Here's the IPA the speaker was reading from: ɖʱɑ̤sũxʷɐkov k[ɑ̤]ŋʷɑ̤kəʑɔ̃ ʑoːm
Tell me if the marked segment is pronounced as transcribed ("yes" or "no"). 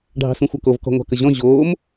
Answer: no